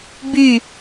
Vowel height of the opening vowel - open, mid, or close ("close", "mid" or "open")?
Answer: close